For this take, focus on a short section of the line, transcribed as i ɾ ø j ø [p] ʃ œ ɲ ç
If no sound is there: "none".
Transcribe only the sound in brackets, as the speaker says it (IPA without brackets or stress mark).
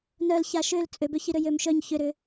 m